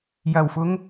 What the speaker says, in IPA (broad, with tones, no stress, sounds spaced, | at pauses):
j ɐ˨˩ w f ʊ˨˥ ŋ